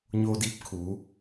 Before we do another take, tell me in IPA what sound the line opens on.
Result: ɲ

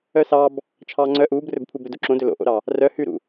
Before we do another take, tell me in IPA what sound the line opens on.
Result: œ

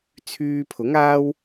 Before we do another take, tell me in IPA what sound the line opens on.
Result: t͡sʰ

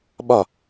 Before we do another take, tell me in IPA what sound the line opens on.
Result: ɓ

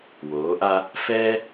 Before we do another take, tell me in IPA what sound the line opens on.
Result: w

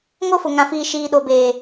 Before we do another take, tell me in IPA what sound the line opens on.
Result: ŋ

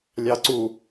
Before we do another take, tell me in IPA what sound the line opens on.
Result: lʲ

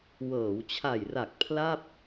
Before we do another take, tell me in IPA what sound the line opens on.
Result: w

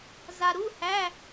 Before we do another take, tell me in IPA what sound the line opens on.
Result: z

